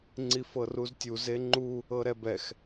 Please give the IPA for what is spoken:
ŋ͡ǀ i f ɤ r u z tʲ u z e ŋ͡ǃ u | ɤ ɾ ɛ b ɛ x

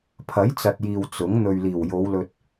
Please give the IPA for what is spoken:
pʰ ɐ˨˥ j t͡s ɐ˨ t̚ j iː˨ w t͡s ʊ˨˥ ŋ n̪ ɵ˨ ɥ l iː˨˩ w j o˨˧ w l ɵ˧ t̚

